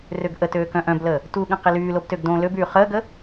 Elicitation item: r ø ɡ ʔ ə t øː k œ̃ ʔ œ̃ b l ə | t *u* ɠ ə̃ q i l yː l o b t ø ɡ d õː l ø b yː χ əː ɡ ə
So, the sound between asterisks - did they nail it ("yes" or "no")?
yes